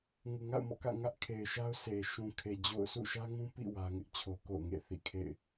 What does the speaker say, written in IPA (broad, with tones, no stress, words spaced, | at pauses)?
ŋu˨ŋa̰˦˨ʊ̯mɔ̰˦˨ kä̰˦˨ ŋä˦ʔ kʰe˨ɪ̯ʃa˦ʊ̯ sʰe˨ ʃũ˨kʰe˨ d͡ʑo̰˦˨ʊ̯ sʰṵ˦˨ʃä˦ ŋũ˦pḭ˦˨ wä˦ŋɪ˦ʔt͡ɕʰo˦ ko̰˦˨ʊ̯ŋḛ˦˨θḭ˦˨ kʰḛ˦˨ɪ̯